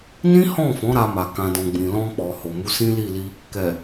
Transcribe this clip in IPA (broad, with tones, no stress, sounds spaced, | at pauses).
n ĩ˦ h ɔ̃˦˨ f ɔ̃˨˦ ɾ a˧ m a˨ k ã˨ d ɔ̃˨ ɡ͡b ĩ˨ l ɔ̃˧ k͡p ɔ˨ h o˨ m u˨˦ s ĩ˦ l i˦˨ l i˧ | k ɛ˨